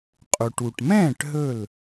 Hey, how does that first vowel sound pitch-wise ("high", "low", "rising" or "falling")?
low